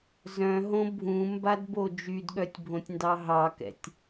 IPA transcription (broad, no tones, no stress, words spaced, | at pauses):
zœ̃ɦõ bʱũmbadbo d͡ʒydɠœtʲbʱõtʲndɑ ɦɑkɛ̰tʲ